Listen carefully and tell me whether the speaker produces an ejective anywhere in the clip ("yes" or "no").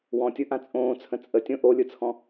yes